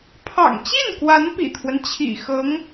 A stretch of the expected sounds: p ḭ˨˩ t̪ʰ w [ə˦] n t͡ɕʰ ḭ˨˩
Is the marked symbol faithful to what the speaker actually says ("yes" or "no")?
yes